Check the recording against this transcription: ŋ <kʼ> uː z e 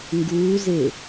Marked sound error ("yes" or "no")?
yes